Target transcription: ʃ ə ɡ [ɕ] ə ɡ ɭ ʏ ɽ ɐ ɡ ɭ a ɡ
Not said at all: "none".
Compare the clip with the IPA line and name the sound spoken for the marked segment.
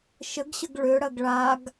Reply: ɕ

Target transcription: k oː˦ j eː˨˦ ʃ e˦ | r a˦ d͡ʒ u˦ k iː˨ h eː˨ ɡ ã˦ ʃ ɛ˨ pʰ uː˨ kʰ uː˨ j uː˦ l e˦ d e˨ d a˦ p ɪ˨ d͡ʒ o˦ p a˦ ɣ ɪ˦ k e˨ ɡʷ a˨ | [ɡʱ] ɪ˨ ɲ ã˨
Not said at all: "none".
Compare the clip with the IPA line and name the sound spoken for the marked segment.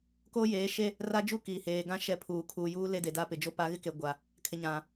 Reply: kʰ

